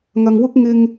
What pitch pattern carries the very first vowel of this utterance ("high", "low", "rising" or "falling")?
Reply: low